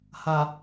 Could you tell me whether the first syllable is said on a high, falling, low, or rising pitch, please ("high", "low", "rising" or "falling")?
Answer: low